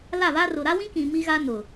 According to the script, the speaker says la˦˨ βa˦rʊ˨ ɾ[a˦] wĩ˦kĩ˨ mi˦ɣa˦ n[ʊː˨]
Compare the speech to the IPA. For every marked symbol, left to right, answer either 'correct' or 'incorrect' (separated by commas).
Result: correct, incorrect